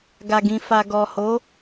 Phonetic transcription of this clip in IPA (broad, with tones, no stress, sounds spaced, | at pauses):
ɡ a˨ ɡ ĩ˨ f a˨ ɡ ɔ˨ h o˨˦